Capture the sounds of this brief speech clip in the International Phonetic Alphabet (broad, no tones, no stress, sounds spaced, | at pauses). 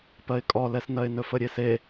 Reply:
p ɜ ɪ̯ kʼ ɔ l ɛ s n ɜ ɪ̯ n ɵ f ə ɾʲ e s e